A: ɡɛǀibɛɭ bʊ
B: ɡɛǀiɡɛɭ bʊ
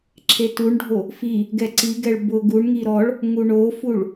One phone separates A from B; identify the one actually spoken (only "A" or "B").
B